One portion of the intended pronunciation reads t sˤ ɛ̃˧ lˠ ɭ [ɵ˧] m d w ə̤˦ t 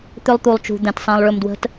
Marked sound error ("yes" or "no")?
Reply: no